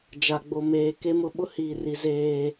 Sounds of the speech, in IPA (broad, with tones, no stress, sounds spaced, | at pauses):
d͡ʒ a˨ ɡ͡b o˨ m eː˨ k e˦ m ʊ˦ ɓ ʊ˦ h iː˨ r i˨ z eː˦